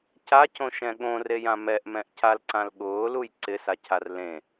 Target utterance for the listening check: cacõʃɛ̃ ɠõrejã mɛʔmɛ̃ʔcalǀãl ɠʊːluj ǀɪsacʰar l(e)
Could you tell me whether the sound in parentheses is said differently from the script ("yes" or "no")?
yes